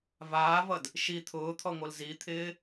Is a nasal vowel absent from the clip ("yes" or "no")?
yes